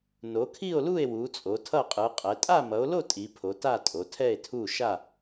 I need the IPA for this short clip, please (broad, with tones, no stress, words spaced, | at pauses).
no˨˦kʰi˥˧o̯lu˥˧e̯ wu˨˦t͡sʼo˨˦ tʰʌ˥˧ qʼɯ˨˦qʼɛ˨˦ tʼa˥˧mʌ˨˦o̯lo˥˧ tʼi˨˦pʰo˨˦ ta˥˧tʼo˨˦tʰɛ˥˧e̯tʰu˥˧ ʃa˥˧